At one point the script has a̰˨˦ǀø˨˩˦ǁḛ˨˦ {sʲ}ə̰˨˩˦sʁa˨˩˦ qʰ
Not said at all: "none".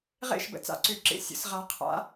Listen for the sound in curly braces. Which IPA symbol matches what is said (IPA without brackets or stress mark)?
sʲ